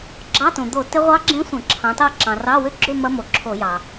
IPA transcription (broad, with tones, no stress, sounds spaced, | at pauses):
ɡ͡ǁ ɑ˧˥˧ t õ˩ d̪ o˧˩˧ t ɪ˦˥ ʁʷ ɑ˦˥ ɡ͡ǁ ẽ˦˥ sʷ ə̃˧˩˧ ǁʰ ɑ̃˨˦ t ɑ˥˧ ǁ ɑ̃˩ r ɑ˧˥˧ w ʏ˥˧ ɡ͡ǁ ʏ˥˧ m ɐ˦˥ m o˩ ǁʰ o˧˩˧ j ɑ˩